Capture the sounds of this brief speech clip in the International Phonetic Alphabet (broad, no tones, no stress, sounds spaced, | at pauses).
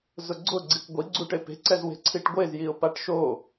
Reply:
z ʊ ɡ͡ǀ ʊ ɡ͡ǀ i kʷ ɡʷ i ɡ͡ǀ u ʈ e p e̤ ǀ ɛ z w e̤ ǀʰ i ʈ ɡʷ e z j i ʊ̯ p a ʈ ʃ o